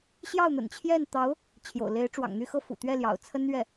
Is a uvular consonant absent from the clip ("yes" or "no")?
yes